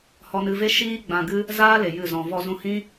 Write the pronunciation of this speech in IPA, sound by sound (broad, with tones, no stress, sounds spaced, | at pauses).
h ɔ˧ n ɨ˧ v e˦ ʃ iː˦ ɡ͡b ã˧ ɡ ɨ˦ | z aː˦ l e˨ j ɨ˦˨ z ɔ̃˧ v ɔ˧ z ũ˧ h ĩ˦